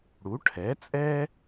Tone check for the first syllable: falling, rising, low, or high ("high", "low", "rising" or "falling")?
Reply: rising